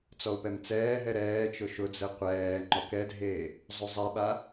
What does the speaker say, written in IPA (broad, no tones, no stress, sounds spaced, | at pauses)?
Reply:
t͡s ɔ u̯ p ɛ m t͡s ɛː ɦ ɛ ɾ ɛː t͡ʃ ʊ ʃ ʊ d͡z ɛ qʷ ɛː ŋ͡ǃ ɔ k ɛ dʱ eː | zˤ u zˤ ɛ ɓ a